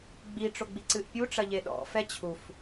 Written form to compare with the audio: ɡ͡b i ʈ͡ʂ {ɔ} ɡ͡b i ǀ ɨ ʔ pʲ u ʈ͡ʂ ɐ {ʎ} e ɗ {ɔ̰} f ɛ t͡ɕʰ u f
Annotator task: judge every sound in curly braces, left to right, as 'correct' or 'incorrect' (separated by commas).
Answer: incorrect, correct, correct